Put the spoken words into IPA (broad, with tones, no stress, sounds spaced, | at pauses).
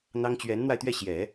n̪ ɑ˥ ŋ t͡ɕ ɥ ɛ˧˥ n n̪ w a˧ ɪ̯ t̪ ɥ ɛ˥˩ ɕ j ɛ˨˩˦